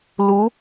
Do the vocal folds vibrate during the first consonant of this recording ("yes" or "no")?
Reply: yes